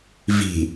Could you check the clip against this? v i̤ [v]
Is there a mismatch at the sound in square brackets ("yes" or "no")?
yes